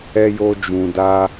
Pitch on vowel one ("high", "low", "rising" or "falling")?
high